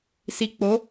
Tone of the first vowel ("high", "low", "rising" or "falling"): low